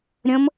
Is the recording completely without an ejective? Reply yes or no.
yes